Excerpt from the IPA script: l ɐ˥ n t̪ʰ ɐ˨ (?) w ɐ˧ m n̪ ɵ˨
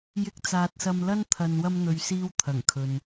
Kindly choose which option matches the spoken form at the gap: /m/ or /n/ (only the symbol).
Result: n